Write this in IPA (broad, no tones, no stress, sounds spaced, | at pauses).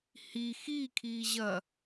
h i x i kʰ iː ʑ ɐ